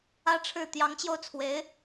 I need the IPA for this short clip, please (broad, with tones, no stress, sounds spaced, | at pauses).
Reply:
ä˥ ʈ͡ʂʰ ɻ̩˥˩ t̪ j ɑ˧˥ ŋ t͡ɕ j o˧ ʊ̯ t͡sʰ w e˧˥ ɪ̯